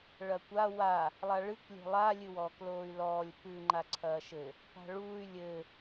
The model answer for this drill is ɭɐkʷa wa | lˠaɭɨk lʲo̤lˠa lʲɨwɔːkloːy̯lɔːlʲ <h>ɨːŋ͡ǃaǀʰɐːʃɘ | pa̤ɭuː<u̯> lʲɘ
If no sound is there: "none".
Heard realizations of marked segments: p, y̯

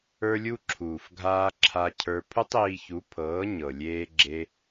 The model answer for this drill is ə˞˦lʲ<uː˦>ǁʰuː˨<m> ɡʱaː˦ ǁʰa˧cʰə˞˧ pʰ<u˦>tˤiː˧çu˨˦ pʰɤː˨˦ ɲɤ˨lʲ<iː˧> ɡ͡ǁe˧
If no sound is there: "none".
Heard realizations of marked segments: u˦, f, u˦, eː˧

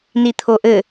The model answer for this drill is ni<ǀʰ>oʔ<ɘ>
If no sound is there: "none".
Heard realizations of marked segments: t̪ʰ, ɘ

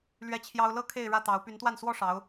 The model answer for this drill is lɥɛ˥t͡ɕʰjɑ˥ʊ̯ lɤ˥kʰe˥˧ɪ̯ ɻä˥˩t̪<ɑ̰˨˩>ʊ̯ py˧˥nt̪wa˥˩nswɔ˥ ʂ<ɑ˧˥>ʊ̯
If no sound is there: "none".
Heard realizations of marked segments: ɑ˧˥, ɑ˧˥

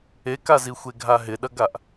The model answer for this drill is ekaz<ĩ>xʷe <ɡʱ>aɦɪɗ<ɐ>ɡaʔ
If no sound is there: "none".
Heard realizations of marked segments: i, ɡʱ, ɐ

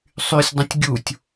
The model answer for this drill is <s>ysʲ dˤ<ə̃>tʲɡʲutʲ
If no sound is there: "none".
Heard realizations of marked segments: sˤ, ə̃

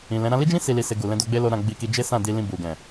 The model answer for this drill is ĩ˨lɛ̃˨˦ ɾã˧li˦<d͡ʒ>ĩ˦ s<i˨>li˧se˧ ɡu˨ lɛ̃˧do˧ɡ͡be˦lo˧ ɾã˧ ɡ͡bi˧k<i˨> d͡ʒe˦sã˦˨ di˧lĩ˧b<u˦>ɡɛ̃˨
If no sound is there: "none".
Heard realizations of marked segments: d͡ʒ, i˧, i˧, u˨

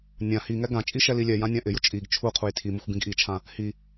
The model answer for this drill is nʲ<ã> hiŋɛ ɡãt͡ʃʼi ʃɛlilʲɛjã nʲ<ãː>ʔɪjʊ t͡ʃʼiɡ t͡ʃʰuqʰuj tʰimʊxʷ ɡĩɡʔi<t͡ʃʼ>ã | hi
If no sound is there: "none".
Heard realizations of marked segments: ã, ã, t͡ʃʰ

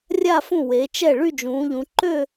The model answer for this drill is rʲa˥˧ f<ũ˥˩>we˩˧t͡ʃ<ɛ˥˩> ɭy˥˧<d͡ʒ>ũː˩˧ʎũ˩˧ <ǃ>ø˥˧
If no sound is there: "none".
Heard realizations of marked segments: ũ˥˩, ɛ˥˩, d͡ʒ, ǃ

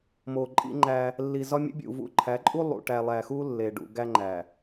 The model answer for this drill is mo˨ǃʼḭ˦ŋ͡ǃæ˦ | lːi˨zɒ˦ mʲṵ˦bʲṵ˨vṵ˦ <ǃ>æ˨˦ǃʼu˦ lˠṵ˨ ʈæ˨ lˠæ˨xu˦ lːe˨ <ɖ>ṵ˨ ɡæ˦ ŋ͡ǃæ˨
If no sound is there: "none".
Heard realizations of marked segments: ǃʰ, ɖ

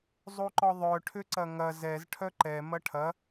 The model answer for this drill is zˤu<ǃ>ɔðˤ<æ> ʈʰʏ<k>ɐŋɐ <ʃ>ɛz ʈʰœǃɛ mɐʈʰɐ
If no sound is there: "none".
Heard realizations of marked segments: ǃ, œ, ǀ, z

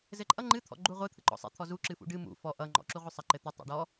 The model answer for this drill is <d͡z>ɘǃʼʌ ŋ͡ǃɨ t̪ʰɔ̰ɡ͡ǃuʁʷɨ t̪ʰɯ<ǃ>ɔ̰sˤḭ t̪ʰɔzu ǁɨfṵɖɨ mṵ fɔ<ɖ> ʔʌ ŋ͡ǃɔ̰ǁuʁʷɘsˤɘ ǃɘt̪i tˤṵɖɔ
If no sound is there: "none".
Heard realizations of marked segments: z, ǃ, none

